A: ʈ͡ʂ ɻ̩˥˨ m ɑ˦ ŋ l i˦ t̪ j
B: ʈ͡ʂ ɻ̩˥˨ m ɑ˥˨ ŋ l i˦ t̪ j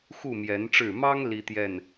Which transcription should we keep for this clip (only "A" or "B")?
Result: A